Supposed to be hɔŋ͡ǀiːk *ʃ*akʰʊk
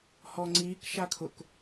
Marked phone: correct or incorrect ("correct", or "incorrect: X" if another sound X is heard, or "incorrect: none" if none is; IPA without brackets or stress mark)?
correct